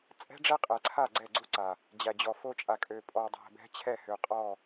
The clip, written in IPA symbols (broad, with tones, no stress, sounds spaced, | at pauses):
t͡sʼ ɛ̤˦ ɖ͡ʐ ɛ˦ qʼ ɛ˨ ǀʰ a˦˨ ɡ͡ǀ ɛ˦˨ ɡ͡ǀ u˦ ǀ a˨ | d͡ʑ æ˨ d͡ʑ ɔ˨ f o˦ t͡ʃʼ a˨ kʼ ø˨ pʼ ɔ˨ dˤ æ̤˨ b ɛ̤˦ t͡ɕʰ ɛ˦˨ h ø˨ qʼ ɔ˦˨